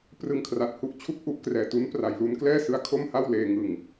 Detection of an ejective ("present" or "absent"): absent